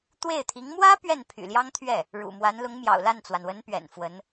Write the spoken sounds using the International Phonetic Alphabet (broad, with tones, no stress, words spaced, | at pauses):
t̪we˥˩ɪ̯t̪ʰi˧˥ŋ mwä˥ pɥɛ˥˩npʰy̰˨˩ljɑ˥ŋt̪ʰɥɛ˥˩ | ɻṵ˨˩mwa˧˥nlʊ˧˥ŋ mjɑ̰˨˩ʊ̯la˥˩nt͡swa˩nwə˧˥n pɥɛ̰˨˩nfwə˧˥n